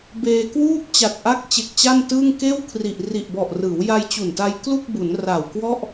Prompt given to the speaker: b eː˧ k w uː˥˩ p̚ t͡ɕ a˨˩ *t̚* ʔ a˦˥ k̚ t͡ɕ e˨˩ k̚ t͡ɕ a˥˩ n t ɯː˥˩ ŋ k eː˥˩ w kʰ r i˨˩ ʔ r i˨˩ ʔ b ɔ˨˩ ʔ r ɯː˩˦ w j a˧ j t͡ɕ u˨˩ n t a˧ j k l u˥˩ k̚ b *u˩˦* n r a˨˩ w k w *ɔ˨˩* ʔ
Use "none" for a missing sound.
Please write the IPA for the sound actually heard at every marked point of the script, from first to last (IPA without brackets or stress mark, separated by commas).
t̚, u˩˦, ɔ˥˩